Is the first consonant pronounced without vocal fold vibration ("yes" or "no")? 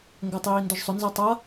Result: no